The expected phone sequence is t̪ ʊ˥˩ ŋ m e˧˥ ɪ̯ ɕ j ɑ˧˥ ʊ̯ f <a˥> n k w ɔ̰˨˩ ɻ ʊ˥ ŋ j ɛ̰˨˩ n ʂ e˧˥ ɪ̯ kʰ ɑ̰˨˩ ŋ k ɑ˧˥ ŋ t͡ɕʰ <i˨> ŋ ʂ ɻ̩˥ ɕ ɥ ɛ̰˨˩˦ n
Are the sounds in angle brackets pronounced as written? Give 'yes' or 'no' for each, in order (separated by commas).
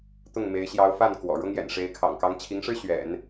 no, no